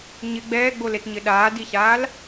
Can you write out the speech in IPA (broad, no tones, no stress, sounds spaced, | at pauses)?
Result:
ɲ ɪ ɡ͡b ɛː ɡ͡b o l e t ɲ ɪ ɗ aː d i ɕ aː l